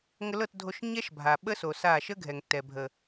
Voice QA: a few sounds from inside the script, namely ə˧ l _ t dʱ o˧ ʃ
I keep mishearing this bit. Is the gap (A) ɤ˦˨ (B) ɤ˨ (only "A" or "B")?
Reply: A